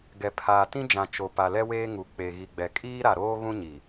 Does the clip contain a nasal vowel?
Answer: yes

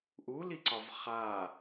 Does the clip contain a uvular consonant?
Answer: yes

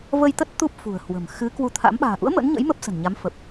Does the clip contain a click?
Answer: no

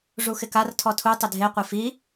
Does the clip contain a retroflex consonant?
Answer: yes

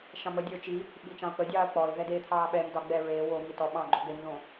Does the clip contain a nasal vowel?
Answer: yes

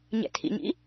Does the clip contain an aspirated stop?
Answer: yes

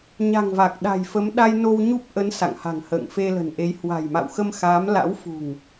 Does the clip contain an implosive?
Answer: yes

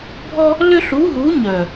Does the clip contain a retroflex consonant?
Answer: no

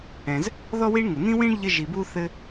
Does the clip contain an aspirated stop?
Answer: no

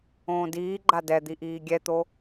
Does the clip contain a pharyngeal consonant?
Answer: no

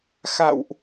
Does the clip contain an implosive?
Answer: no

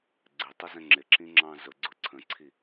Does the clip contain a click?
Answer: yes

